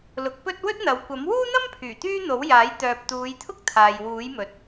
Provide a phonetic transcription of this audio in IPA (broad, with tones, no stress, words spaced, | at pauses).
lʊ˨˥k̚pɵ˥t̚ wɵ˥t̚n̪ɐ˨˧wkʷɐ˨˥m wuː˥n̪ɐ˥mpʰyː˨˩ t̪yː˥n̪o˨˥wjaː˨˥j t̪œː˨p̚t̪uː˨˧jt̪ʰʊ˥k̚ t̪ʰaː˨jwuː˨˥jmɵ˨t̚